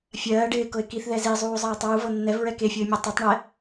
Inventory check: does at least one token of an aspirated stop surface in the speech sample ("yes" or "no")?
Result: no